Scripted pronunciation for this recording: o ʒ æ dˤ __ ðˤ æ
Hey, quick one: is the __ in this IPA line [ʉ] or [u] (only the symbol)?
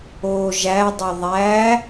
u